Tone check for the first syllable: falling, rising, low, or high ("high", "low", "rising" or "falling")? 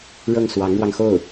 falling